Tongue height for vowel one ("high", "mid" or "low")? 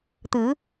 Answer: high